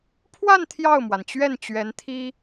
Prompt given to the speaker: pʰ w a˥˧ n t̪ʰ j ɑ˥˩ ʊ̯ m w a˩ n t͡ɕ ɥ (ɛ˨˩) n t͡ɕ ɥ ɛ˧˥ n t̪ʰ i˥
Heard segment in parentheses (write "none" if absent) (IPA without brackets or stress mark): ɛ˥˩